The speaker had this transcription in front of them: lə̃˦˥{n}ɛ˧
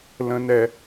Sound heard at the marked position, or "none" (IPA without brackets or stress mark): n